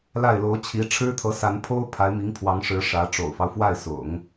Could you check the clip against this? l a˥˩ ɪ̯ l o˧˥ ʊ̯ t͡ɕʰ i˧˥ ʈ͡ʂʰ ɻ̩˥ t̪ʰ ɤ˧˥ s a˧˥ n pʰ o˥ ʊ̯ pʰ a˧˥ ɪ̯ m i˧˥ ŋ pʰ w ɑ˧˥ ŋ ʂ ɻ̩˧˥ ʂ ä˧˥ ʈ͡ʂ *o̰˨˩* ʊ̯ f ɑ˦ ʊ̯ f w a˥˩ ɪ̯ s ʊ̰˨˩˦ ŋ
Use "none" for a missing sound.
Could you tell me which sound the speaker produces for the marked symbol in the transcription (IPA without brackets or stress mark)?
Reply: o̰˨˩